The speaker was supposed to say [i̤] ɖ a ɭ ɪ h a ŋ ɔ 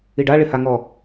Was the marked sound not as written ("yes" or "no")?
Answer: yes